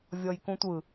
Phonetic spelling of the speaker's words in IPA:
vʲ ɔ j k ũ tʷ ɯ

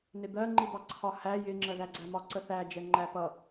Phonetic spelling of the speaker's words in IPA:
n ɪ d̪ ɜ ŋ͡ǃ i d̪ ɑ ǀʰ ɒ h æ j ɪ ŋ͡ǁ ɜ ð æ ɡ͡ǀ æ m ɒ ǀ ə θ æ d͡ʒ ɛ ŋ͡ǃ æ p ʌ

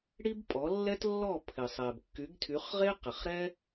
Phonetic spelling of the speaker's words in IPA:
ɽ i˥ b pʼ ɔ˩˥ lː ɛ˥ t lː ɔ˥˩ pʰ ɪ˩ sˤ ɛ˩ b kː y˩˥ ɡ tʰ y˩˥ χ ʁ e˥ q ɪ˩ χ ɾ ɛ˥

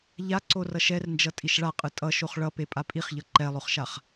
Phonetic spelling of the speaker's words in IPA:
ʎ a ǀ o r ʌ ʃ ɛ r n d͡ʒ ʌ tʼ i ʃ ɭ a qʼ ɯ tʼ ʌ ʃ o χ ɭ ʌ p e pʼ a pʼ i χ ʎ ʌ ǃ ɛ lˠ o χ ʃ a χ

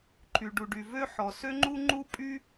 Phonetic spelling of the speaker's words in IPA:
ǃʰ y˩ ɖ u˩ ɖ y˩ v ø˥ ħ ɔ˩ s ø˥ ŋ͡ǃ u˥ ŋ͡ǃ u˥ pʼ y˥

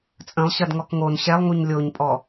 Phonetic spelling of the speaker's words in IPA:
t͡sʼ ə̃ lˠ ɕ ɐ d ŋ ɔ k ŋ o n ɕ ɛ lˠ ŋ u ɲ lʲ o ɲ pʼ ɔ

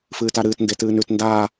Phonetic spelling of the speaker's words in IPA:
f ɨː t a ɾ ɨː t n d e t ɨː n ʉ t n d aː

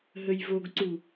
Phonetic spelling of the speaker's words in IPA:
ɦ ə j v o ɡ ǀ u

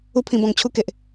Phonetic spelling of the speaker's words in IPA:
u˦ pʰ ĩ˧ b ɔ̃˧ ŋ t͡ɕʰ u˦ k e˨ ʔ

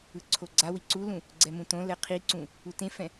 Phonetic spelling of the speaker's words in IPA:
ɯ ǀʰ o ɡ͡ǀ a w i ǀ u l ũ | ɡ͡ǀ ɛ m ũ t õ l ɛ qʰ i ǀ ũ | u t ẽ f ɛ̃

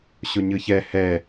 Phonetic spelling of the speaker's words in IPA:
ɕ o ɲ ɯ ç ɛ h ɛ

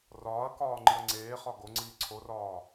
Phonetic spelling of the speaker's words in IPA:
r ɒː ɐ̯ k ɒː ŋ͡ǃ i ɐ̯ ŋ͡ǀ eː χ ɒ ɡ o ŋ͡ǀ iː ǀʰ o r ɒː

